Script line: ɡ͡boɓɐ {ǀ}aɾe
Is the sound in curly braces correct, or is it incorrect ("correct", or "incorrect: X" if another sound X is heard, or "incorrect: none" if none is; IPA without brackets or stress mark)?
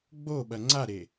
incorrect: ŋ͡ǀ